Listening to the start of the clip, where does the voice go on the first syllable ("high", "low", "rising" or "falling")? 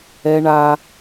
high